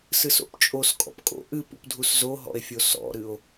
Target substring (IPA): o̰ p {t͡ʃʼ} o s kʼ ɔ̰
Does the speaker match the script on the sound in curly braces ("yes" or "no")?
yes